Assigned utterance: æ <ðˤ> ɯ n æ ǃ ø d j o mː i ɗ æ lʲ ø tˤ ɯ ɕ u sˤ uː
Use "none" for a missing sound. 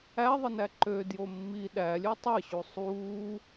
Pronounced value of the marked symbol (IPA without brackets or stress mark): ðˤ